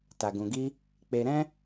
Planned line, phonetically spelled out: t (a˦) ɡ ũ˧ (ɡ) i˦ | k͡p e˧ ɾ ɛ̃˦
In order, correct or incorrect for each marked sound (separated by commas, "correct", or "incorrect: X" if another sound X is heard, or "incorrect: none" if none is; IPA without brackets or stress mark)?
incorrect: a˧, correct